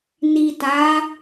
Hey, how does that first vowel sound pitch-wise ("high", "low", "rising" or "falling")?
low